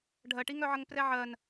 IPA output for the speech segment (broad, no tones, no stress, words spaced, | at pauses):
ɖʱɜʈiŋœʕəŋ prɛʕɜn